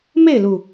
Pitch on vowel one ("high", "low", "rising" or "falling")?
falling